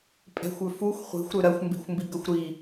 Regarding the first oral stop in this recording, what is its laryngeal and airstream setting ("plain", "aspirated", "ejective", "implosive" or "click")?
ejective